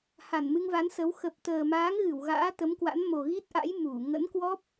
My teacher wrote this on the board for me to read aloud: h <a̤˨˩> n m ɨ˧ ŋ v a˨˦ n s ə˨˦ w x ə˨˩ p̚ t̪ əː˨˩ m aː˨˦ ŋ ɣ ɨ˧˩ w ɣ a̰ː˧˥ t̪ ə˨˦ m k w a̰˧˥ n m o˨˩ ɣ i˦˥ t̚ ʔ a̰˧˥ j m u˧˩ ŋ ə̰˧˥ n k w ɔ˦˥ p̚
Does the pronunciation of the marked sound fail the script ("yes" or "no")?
yes